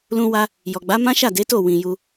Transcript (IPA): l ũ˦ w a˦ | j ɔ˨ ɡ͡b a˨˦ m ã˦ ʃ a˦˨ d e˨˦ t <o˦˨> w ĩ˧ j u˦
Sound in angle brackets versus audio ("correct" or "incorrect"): correct